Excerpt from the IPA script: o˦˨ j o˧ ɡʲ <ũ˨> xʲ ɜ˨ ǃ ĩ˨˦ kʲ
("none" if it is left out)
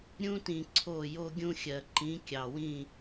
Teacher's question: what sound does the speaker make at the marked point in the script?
ũ˧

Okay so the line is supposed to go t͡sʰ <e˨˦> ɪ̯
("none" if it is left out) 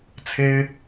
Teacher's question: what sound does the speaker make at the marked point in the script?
e˦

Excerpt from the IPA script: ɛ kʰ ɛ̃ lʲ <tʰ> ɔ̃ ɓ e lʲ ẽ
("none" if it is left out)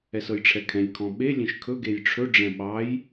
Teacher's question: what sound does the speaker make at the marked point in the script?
kʰ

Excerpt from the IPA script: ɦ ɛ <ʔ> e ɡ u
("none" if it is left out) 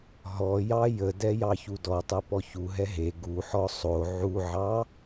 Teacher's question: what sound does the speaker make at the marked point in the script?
ɦ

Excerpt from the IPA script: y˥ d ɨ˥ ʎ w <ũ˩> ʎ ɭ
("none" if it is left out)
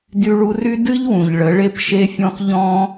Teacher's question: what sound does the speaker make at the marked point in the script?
ũ˩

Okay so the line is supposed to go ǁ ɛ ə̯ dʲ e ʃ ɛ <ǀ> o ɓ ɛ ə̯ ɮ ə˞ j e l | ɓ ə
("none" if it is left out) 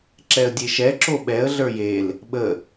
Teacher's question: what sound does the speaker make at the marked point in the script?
ǁ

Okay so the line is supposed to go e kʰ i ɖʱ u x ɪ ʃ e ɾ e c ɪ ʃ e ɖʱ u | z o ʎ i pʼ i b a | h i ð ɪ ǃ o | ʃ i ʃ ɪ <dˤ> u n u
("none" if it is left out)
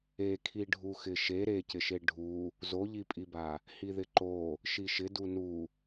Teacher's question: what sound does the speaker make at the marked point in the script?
d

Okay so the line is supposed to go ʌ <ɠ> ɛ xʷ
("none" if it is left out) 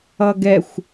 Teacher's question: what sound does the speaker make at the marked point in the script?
ɡ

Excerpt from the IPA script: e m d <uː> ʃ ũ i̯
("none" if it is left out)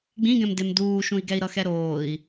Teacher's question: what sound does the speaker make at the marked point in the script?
uː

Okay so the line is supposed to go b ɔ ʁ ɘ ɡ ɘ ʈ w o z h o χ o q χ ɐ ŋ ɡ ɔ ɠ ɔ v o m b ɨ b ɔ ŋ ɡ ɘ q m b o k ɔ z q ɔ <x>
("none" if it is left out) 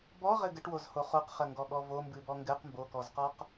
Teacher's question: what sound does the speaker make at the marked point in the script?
q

